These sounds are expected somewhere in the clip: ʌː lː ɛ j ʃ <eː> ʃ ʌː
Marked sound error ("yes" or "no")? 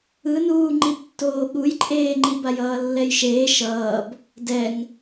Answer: no